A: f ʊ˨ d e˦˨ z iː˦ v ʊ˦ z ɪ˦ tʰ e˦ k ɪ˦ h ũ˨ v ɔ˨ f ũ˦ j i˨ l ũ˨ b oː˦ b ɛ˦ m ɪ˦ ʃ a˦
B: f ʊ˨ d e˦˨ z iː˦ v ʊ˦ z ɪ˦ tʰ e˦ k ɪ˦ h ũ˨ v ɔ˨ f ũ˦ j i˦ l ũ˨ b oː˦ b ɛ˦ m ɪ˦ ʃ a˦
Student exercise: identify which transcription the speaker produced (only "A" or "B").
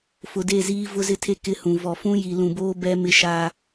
A